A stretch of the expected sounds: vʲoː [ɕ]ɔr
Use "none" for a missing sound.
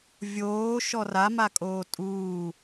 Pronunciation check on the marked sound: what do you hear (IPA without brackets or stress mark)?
ʃ